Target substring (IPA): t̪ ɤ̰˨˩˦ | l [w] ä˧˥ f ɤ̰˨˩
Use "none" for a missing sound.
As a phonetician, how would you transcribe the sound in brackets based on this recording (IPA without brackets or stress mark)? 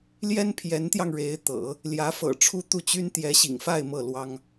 j